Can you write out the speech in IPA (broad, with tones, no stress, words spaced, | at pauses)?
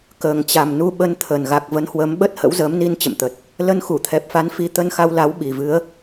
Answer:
kəː˨˩ŋt͡ɕa˨˩mnu˧ ɓə˧nt̪ʰə˨˩n ɣa˨˩k̚və˨˦nhwə˨˦m ɓə˦˥t̚hə̰˧˥w zəː˨˦mni˧nt͡ɕə̰˧˨mt̪ə˨˩t̚ | lə˧nxu˧˩t̪ʰɛ˨˩p̚fa˨˦n fi˨˦t̪ə˧nxa˧wla˨˦w ɓi˨˩vɨ˨˦ə̯